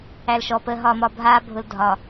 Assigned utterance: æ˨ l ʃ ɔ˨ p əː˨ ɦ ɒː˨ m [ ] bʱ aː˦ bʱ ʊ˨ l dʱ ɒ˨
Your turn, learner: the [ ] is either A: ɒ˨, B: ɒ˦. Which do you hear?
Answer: A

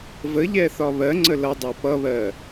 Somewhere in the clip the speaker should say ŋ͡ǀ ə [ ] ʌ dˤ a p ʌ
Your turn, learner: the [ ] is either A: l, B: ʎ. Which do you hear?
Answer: A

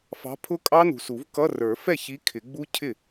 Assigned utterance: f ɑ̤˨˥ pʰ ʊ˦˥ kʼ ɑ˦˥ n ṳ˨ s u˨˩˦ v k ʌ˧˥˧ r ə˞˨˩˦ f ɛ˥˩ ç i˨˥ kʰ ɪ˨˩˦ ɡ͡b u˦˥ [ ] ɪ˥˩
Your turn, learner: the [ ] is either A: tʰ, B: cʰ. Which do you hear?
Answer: B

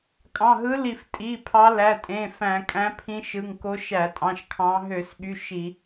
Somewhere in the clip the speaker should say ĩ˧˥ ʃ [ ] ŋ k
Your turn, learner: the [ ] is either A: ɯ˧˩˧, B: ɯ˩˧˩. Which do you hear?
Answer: B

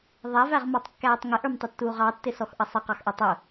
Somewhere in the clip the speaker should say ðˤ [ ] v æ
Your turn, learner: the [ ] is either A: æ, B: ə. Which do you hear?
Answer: A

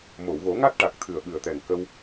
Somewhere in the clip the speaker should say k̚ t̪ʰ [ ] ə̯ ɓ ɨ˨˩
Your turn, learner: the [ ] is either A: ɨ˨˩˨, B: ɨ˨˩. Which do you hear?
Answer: B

